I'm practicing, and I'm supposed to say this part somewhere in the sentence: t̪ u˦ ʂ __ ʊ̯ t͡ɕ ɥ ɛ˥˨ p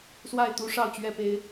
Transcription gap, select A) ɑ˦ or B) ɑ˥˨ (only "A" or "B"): B